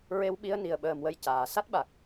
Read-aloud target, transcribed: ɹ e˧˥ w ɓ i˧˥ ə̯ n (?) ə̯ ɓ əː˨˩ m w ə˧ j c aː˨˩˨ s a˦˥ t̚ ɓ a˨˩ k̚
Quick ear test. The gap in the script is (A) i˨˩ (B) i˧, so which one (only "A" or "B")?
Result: A